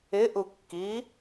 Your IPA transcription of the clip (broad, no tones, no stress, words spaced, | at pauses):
ɪʔukːi